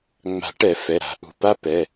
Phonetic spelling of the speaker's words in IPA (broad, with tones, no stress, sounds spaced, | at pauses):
ŋ͡m a̤˨˩˦ ʈ ɛ˨˩˦ f ɛ˩˧˩ ɾ a̤˨˩˦ ʔ ṳ˩˧˩ p a˥ p ɛ˩˧˩